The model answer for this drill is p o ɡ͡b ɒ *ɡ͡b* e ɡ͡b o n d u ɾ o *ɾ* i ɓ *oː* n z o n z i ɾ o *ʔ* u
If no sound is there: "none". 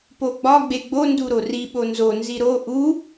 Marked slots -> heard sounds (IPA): ɡ͡b, r, o, ʔ

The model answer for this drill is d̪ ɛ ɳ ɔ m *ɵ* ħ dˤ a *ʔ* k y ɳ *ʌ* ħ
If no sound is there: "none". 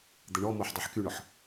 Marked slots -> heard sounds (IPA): o, ħ, ɔ

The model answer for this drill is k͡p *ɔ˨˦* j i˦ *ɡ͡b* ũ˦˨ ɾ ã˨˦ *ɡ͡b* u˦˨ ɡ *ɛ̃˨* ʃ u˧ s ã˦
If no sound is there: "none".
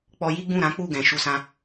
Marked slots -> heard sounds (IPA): ɔ˧, ɡ͡b, k͡p, ɛ̃˨

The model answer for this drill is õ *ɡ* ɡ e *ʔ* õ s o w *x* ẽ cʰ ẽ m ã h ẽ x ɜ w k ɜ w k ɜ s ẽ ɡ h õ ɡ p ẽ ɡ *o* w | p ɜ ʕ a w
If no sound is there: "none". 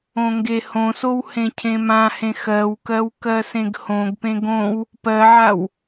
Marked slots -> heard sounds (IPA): ŋ, h, h, õ

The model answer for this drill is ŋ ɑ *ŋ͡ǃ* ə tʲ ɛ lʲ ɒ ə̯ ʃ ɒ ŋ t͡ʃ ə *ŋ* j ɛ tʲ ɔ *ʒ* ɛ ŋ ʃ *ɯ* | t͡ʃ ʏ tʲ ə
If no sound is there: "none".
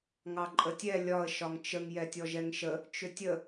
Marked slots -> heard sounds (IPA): ǃʼ, ŋ, ʒ, ə

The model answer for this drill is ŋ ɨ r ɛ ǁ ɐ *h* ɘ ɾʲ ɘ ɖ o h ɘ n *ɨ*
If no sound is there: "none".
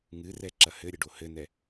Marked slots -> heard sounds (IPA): h, ɛ

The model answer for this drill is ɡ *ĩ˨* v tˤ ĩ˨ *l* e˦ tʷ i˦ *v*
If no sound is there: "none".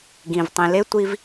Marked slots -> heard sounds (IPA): ĩ˨, l, v

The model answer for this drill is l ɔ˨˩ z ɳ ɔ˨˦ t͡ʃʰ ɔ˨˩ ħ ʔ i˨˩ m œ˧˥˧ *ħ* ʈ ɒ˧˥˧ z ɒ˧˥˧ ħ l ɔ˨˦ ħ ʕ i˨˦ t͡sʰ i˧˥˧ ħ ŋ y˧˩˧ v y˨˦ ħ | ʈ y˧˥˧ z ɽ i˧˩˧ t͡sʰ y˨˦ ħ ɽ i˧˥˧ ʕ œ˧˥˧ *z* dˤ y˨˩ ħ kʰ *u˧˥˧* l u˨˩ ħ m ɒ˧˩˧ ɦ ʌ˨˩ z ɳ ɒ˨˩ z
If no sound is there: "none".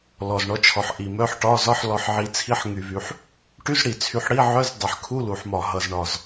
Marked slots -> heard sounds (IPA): ħ, z, u˧˥˧

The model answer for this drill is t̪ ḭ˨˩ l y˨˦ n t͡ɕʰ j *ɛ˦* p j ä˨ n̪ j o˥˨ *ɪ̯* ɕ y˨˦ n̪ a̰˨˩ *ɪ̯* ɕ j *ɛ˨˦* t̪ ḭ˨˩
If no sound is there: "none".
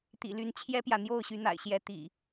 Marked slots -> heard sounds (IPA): ɛ˦, ʊ̯, ɪ̯, ɛ˨˦

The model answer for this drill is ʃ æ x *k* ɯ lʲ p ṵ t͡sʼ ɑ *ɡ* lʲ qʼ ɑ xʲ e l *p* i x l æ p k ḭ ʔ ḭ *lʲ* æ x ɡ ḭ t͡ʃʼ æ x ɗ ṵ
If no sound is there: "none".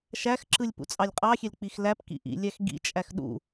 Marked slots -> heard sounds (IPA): ǁ, none, k͡p, lʲ

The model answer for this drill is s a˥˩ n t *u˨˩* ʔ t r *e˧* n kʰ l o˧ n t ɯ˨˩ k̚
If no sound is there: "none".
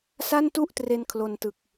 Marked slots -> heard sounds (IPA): u˥˩, e˧

